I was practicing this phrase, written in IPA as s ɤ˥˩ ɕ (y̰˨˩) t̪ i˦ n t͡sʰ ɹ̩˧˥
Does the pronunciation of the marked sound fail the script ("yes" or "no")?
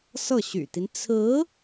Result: no